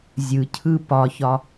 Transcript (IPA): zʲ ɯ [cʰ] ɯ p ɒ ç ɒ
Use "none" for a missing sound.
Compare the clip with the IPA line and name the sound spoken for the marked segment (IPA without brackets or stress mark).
cʰ